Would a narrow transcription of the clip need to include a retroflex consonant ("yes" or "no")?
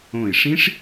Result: yes